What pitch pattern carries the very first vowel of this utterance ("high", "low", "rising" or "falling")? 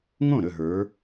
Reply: falling